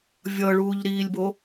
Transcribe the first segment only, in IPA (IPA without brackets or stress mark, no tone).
vʲ